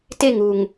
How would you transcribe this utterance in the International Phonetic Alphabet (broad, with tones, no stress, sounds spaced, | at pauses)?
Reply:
t e˦˨ ŋ u˨ ŋ